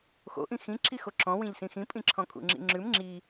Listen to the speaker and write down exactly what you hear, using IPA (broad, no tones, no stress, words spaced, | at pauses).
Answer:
xo̰ʔĩ xĩ ǁixoǁɔ̃ wĩʎsĩxĩpʼĩ ǁʰɔ̃kʼṵŋ͡ǁḭŋ͡ǁʉm ŋ͡ǁi